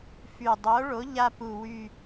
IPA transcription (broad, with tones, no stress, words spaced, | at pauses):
fy˨˩dˤo˨˥ɭo˨˥ ʎa˦pu˨˩ wy˦˨